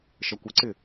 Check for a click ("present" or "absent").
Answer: present